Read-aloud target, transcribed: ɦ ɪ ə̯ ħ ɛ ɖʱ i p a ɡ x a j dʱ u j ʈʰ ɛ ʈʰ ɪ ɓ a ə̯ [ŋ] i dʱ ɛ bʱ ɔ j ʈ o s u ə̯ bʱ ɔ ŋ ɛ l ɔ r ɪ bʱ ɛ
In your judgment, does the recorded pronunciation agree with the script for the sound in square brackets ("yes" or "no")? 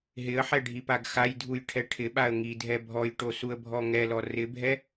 yes